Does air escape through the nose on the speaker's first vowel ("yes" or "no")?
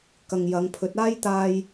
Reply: no